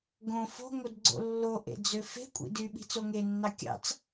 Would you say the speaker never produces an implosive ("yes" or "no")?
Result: no